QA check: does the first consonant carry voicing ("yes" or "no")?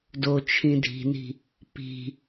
yes